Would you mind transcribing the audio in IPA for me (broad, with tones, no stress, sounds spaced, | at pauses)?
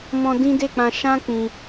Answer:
m ɔ̃˧ d ĩ˦ d e˦˨ k͡p ã˧ ʃ ã˦ k͡p ĩ˧